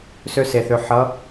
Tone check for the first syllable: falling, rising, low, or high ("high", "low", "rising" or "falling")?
high